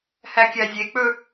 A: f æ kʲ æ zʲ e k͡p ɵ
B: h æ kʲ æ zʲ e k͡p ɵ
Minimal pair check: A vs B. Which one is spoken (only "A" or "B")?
B